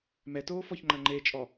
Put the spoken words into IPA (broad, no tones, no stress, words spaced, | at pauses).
mɛtoːfɔçŋ͡ǃɐ ŋ͡ǃet͡ʃʼɔ